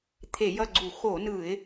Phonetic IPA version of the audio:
t̪ʰ e˧˩˧ j ʌ˦˨ ɡ͡ǀ u˧˩˧ x o˧˩˧ n ɯ˧˩˧ ɪ̯

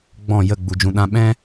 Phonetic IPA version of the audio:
ɡ͡b ɔ̃˦˨ j ə˦˨ ɡ͡b u˧ d͡ʒ ũ˧ ɗ ã˦ ɓ ɛ̃˦

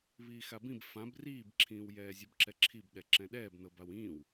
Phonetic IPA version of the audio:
β iː x a b ĩ b f ã b r iː b ǁʰ ĩː w j ɛː zʲ ɛ b ǁ ɛ ǁʰ i b ɗ ɛ ǁ ɛ̃ ɗ ɛː b n ɤ b a w ĩː w

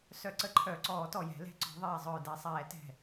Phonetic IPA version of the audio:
s œ˧˩˧ ǀ ə˧˩˧ ǃʰ œ˧˩ ǀ ɔː˧˩˧ t ɔ˧˩ j ɛ̤˧˩˧ l ɛ̤˧˩ ǀ ɔ̤˧˩˧ ðˤ ɛː˧˩ zˤ œː˧˩ d ɛ˧˩ sˤ ɛː˧˩˧ t ɛ̤˧˩

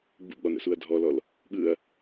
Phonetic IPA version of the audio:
ɡ͡b ṵ ɡ͡b ɒ n ə̰ s u ɐ̯ dʱ ɔ l ɔ l | ɠ ɯ ɐ̯

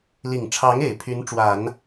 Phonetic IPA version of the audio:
l i˨˩ ŋ ʈ͡ʂʰ ɑ˧˥ ŋ e˨˩ ɪ̯ pʰ y˧˥ n ʈ͡ʂ w a˨˩˦ n

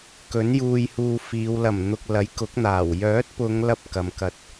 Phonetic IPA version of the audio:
k ɵ˨˥ n j uː˧ j h uː˧ f iː˨˧ w l ɐ˨˩ m n̪ ʊ˨ k̚ l ɐ˨˥ j k ʊ˨˥ k̚ n̪ aː˨˩ w j œː˨˥ t̚ p ʊ˨˧ ŋ l ɐ˥ p̚ k ɐ˨˧ m k ɐ˧ t̚

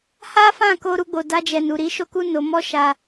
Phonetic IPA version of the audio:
h a˦ f ã˦˨ k o˧ ɾ u˧ ɡ͡b o˨ d a˧ d͡ʒ ɛ˨ n u˨ ɾ i˨˦ ʃ o˦ k u˦ n o˧ m ɔ˦ ʃ a˧

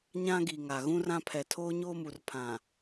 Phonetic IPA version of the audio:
ɲ ã˦ ɡ i˨ ŋ a˨ ɣ ũ˦ r ã˦ pʰ ɛ˨ tʰ oː˦ ɲ oː˦ m u˨ r pʰ ã˨

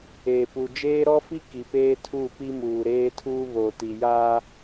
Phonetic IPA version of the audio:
eː˨ p u˨ d͡ʒ eː˦ ɾ ɔ˦ f i˦ k i˨ p eː˦ tʰ u˦˨ p i˦ m uː˨ ɾ eː˦ tʰ uː˦ β o˨ t i˨ j aː˦

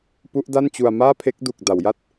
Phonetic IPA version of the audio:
p u˦˥ ʔ d a˥˩ n t͡ɕ u˧ a̯ m aː˥˩ pʰ e˦˥ k̚ d u˨˩ k̚ d a˩˦ w j a˦˥ t̚

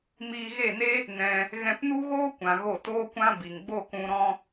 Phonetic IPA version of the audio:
m iː˧ ɣ e˦˨ n e˦ | n ɛ̃˧ | ɣ ɛ̃˧ p n u˦ ɣ oː˦ kʷ ã˨ ɣ o˦˨ t oː˦ kʷ ã˦ b i˨ ŋ ɡ͡b o˦˨ k ũ˧ ɾ ɔ̃˦

